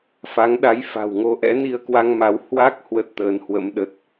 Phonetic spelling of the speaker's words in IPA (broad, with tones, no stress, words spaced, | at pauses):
fa˨˦ŋɗa˨˦j fa̤˨˩wŋo˧ʔɛ̰˧˥ ni˧ə̯kwa˧ŋ ma˨˦w hwa˦˥k̚ hwə˦˥t̚t̪əː˨˦nhwə̰˧˥m ɗə˦˥t̚